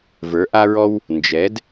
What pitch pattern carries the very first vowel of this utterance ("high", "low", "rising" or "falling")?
rising